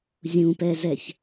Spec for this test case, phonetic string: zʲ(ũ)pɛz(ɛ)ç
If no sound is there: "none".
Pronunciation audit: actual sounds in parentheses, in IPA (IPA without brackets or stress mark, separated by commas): ũ, ɛ